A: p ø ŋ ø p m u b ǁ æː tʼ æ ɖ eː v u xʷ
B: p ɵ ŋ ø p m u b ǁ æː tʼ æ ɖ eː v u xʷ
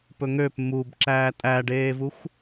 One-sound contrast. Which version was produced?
B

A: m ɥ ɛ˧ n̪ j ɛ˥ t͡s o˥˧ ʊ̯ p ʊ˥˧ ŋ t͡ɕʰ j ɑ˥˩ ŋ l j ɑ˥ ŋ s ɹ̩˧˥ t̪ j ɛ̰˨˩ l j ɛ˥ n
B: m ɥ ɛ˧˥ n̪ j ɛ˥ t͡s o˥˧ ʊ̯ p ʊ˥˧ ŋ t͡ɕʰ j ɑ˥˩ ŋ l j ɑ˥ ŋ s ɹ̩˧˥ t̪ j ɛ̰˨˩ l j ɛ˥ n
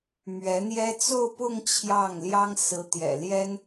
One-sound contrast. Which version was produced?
B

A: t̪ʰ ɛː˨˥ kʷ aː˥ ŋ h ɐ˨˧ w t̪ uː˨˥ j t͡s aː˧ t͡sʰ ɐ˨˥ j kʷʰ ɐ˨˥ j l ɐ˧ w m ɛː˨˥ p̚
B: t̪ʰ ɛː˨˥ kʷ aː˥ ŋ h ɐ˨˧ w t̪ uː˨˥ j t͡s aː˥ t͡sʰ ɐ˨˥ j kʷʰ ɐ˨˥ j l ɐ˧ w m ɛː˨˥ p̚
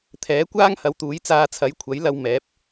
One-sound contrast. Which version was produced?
A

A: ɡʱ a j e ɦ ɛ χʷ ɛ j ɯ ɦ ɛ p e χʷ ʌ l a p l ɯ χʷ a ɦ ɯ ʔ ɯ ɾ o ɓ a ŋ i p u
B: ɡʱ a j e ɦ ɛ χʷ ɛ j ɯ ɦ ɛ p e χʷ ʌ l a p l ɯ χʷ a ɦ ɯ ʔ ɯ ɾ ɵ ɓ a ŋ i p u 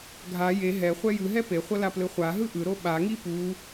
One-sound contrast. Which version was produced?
A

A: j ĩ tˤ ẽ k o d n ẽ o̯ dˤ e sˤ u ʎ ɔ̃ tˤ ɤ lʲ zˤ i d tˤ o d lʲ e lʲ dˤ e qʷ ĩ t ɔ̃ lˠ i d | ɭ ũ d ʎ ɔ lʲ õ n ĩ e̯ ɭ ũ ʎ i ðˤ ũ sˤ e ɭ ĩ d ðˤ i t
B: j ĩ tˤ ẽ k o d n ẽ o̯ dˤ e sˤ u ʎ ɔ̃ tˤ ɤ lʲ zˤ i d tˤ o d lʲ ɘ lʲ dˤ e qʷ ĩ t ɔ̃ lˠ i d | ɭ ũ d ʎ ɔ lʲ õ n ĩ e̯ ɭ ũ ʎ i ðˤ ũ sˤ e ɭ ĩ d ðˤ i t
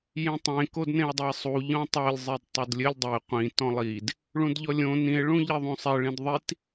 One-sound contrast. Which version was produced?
B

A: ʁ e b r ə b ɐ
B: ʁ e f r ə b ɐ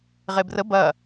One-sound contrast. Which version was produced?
A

